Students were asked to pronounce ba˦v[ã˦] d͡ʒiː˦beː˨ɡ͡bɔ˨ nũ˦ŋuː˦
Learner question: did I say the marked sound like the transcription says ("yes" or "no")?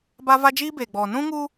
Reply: no